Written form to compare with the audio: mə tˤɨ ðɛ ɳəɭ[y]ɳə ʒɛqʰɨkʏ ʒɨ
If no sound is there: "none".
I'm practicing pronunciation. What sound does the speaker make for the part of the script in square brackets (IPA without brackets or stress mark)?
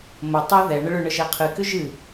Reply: ʏ